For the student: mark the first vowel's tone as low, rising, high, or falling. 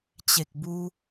low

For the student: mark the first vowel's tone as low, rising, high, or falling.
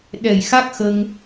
low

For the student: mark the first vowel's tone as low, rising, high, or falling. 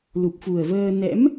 low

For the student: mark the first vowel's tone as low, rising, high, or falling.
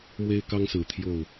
high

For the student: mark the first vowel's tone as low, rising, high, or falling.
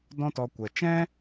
high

